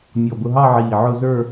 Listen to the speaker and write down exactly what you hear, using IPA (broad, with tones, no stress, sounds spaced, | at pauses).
mʲ ɔ˧˩ b ʊ˧ ɦ ɑ˥˧ ʕ iː˧˩ ʕ ʊ˥˧ z ə˞˥˧